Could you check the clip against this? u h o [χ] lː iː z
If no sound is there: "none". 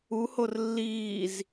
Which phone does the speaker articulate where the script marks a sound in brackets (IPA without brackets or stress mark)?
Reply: r